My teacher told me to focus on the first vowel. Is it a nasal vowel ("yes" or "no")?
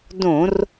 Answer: yes